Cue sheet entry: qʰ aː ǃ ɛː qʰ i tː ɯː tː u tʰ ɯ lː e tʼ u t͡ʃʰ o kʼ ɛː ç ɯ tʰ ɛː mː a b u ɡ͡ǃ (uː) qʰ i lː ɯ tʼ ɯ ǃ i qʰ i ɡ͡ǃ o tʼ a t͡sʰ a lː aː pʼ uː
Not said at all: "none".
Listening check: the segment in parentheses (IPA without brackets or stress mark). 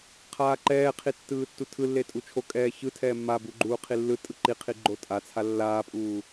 uː